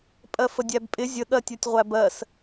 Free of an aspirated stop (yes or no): yes